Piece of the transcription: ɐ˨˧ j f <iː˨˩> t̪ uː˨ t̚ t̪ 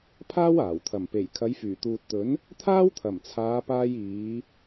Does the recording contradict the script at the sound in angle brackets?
yes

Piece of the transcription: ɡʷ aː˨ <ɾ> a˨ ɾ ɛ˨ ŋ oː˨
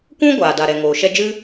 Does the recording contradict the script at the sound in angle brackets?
yes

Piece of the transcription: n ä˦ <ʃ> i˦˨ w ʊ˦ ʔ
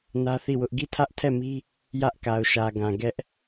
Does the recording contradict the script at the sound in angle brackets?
yes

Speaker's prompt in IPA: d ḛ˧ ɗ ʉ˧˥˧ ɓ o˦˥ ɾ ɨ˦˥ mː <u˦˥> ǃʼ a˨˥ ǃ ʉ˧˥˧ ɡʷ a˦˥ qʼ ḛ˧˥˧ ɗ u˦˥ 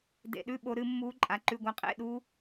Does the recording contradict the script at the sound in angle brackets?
no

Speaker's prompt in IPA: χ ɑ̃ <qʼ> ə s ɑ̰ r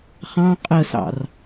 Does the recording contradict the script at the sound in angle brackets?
no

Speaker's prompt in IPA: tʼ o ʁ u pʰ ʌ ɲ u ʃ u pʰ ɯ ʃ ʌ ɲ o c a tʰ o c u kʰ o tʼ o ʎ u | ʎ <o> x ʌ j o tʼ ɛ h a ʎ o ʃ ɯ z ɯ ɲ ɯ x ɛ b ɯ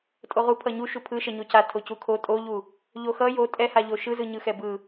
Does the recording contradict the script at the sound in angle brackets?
no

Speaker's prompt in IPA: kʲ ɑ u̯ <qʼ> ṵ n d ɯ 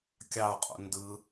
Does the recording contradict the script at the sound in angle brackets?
no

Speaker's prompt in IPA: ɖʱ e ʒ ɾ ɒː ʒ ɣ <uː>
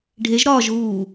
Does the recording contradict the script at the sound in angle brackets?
no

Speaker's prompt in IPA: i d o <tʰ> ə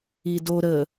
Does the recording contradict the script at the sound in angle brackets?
yes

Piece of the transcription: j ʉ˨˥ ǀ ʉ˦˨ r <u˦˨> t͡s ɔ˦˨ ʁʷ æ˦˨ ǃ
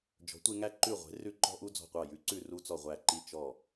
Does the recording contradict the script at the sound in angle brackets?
yes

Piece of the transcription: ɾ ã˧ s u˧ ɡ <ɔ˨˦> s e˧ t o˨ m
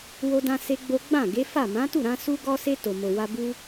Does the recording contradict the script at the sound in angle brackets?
yes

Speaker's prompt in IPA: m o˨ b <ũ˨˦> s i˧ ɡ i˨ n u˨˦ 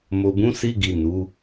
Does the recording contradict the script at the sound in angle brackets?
no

